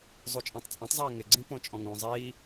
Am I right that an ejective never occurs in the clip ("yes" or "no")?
no